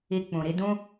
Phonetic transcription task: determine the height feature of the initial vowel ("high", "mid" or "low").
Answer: high